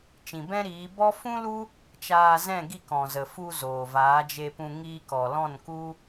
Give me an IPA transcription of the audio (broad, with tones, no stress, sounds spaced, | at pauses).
t͡ʃ ĩ˨ b ɛ̃˦ ɾ iː˨˦ b ɔ˦ f ũ˦ l u˦ | t͡ʃ aː˧ z ɛ̃˦˨ ɡ i˦˨ k ɔ̃˨ z ə˨ f u˧ z oː˨ v aː˨˦ d͡ʒ e˧ p ũ˧ ŋ iː˧ k ɔ˨ l ɔ̃˦˨ n k u˦